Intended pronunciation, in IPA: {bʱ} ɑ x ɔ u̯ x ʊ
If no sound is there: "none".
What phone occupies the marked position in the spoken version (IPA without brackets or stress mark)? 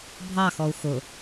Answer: bʱ